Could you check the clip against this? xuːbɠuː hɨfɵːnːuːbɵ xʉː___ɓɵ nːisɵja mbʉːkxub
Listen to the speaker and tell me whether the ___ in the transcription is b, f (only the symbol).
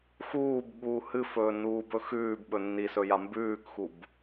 b